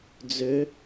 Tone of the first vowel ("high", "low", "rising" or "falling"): rising